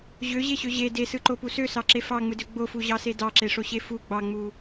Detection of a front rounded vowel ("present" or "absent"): present